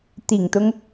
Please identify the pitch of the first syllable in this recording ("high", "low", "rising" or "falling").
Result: low